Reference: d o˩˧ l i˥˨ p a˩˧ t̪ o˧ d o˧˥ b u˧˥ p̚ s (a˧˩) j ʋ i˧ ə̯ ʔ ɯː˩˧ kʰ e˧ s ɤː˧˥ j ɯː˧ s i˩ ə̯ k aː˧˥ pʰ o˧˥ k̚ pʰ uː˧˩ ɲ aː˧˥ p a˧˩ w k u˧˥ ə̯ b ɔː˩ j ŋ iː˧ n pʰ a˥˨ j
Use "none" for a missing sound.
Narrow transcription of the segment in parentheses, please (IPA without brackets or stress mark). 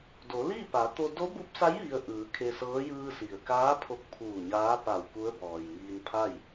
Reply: a˧˥